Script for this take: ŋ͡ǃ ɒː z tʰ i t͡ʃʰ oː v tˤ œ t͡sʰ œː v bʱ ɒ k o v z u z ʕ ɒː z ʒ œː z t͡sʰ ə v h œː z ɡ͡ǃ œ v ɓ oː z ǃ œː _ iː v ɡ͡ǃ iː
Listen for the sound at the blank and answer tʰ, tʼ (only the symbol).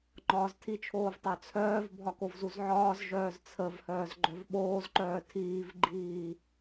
tʰ